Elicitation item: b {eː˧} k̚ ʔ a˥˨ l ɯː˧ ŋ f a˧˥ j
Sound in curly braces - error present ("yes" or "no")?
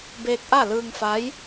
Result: no